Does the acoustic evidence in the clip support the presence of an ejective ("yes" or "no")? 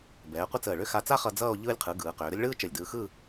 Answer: no